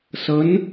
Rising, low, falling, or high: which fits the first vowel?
rising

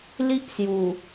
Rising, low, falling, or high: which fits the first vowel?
high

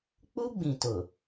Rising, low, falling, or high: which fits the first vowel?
high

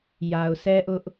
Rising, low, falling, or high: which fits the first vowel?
low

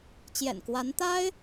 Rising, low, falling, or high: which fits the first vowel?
low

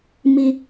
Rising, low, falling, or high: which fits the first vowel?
high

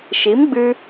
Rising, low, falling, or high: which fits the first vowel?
rising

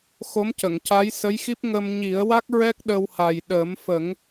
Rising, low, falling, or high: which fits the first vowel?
rising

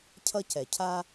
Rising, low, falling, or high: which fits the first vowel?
high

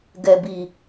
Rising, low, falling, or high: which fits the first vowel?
low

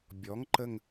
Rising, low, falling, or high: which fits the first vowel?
rising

